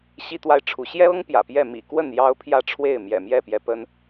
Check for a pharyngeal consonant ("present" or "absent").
absent